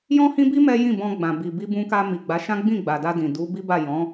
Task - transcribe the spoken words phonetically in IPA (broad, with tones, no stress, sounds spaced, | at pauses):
j ɔ̃˦ h ĩ˦ b i˦ m ɛ˦ j ĩ˦˨ b ɔ̃˧ ɡ͡b ã˨ b i˨ b i˧ b ũ˧ k a˧ m i˨ ɡ͡b a˨˦ ʃ ã˦ ɡ͡b ĩ˦˨ ɡ͡b a˨ d a˧ d ĩ˨ d u˨˦ b i˦ b a˦˨ j ɔ̃˨˦